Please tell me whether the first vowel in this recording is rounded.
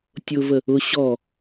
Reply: yes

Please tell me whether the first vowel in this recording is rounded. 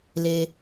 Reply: no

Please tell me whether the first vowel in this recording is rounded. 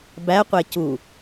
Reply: no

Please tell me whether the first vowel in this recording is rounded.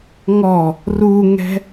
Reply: yes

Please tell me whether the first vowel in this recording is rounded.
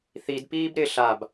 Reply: no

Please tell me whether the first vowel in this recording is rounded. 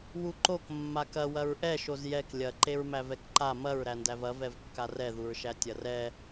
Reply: yes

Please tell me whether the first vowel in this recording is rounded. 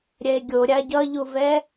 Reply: no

